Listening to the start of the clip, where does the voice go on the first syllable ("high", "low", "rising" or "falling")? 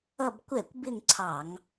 falling